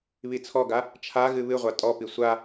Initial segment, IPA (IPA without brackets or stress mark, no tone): β